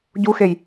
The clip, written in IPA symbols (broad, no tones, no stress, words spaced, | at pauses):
ɟuxej